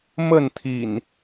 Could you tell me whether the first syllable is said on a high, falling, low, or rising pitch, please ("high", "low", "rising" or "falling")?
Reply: falling